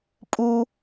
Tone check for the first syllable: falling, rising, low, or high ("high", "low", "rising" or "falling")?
high